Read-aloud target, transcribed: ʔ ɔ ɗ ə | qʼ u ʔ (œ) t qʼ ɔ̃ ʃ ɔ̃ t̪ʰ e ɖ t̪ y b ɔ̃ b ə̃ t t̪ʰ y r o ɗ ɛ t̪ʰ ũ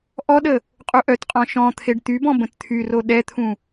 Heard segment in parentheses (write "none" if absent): œ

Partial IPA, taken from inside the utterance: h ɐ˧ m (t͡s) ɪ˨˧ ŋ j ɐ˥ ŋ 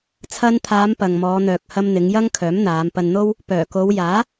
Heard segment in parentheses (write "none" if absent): n̪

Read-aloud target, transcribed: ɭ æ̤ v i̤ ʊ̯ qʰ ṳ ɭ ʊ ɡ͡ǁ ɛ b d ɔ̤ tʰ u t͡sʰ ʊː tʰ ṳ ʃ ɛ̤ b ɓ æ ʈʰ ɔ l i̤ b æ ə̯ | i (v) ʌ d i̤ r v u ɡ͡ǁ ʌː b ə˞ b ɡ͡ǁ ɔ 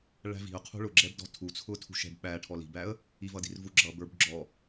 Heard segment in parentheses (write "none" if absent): v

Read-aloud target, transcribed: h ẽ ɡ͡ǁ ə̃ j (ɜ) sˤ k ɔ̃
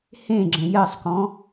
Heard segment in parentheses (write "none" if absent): ɜ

